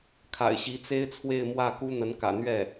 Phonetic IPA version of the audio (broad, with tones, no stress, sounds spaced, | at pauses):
kʰ a̰˨˩ ɪ̯ ɕ i˧˥ t͡s e˥ ɪ̯ t͡sʰ w e˥˧ ɪ̯ m w ä˥˩ k u˥ n̪ ə˧˥ n k ä̰˨˩ n̪ ɥ ɛ˥˩